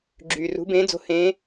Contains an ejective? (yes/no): no